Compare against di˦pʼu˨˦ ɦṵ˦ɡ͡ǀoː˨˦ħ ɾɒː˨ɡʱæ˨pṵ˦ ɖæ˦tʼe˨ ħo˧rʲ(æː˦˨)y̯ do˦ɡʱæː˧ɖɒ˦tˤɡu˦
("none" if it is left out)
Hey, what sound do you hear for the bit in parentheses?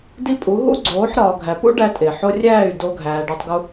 æː˦˨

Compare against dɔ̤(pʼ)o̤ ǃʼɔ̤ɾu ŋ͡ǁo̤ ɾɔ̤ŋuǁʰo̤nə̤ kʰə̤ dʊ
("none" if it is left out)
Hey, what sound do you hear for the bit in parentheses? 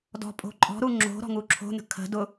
pʼ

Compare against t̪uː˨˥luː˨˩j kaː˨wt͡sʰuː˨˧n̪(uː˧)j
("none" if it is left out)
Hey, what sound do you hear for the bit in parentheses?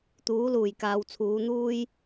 uː˥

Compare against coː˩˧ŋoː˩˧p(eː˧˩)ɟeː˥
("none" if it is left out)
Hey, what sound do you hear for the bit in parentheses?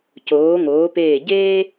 eː˧˩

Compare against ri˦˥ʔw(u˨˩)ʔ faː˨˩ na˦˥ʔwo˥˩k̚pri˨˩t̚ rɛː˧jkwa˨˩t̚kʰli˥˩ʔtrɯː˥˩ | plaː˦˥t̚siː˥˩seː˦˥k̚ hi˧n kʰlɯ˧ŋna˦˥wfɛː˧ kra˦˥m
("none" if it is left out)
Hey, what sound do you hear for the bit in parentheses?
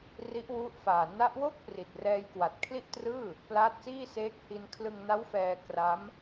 u˦˥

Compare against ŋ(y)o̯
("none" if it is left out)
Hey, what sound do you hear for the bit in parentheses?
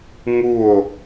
u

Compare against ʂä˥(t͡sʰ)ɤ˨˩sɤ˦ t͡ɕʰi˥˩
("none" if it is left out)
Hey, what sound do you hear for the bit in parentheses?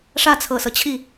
t͡sʰ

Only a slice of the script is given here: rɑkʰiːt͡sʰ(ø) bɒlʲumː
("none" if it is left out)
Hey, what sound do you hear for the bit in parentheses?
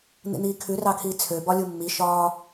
ø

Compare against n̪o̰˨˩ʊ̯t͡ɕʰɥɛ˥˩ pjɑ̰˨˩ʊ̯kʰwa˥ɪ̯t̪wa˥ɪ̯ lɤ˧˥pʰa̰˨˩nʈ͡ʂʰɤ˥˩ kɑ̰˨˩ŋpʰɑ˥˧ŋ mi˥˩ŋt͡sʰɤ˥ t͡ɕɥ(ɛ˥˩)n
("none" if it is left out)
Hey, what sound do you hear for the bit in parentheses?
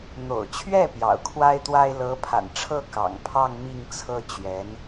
ɛ˧˥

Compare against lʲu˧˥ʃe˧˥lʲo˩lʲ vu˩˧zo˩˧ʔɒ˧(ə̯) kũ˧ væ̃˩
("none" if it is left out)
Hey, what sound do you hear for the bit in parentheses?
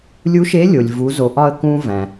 ə̯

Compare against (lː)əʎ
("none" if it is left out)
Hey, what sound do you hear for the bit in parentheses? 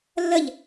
lː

